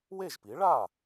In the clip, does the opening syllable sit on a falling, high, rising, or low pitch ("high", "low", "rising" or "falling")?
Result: falling